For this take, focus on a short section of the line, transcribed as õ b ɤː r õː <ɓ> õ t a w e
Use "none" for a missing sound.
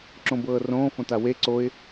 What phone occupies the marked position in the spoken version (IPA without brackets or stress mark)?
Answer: f